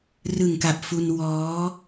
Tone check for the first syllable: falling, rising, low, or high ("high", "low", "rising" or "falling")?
low